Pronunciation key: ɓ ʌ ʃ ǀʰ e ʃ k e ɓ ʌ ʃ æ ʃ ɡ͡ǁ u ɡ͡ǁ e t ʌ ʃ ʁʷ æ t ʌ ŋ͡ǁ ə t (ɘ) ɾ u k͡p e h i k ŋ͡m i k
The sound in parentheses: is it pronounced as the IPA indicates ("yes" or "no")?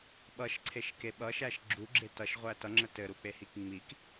yes